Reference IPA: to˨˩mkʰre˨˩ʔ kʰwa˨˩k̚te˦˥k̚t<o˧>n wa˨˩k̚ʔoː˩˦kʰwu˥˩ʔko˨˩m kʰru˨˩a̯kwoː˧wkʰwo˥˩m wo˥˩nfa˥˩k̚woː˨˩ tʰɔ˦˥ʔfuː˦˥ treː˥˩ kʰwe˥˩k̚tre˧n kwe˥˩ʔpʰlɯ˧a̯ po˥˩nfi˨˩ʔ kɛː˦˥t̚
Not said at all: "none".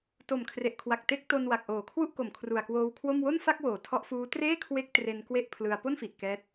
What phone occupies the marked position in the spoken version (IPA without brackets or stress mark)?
o˧